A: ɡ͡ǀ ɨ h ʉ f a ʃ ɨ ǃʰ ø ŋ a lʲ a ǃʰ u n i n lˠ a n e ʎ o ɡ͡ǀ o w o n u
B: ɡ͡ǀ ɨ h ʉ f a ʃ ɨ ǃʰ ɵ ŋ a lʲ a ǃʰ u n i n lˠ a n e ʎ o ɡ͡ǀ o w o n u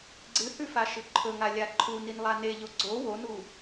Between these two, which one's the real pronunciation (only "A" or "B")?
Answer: B